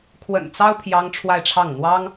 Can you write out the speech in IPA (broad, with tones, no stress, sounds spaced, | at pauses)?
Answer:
kʰ w ə̰˨˩ n t͡s ɑ˥ ʊ̯ pʰ j ɑ˥ ŋ ʈ͡ʂʰ w a˥˧ ɪ̯ ʈ͡ʂʰ ɑ˥˩ ŋ n̪ w ɑ˥ ŋ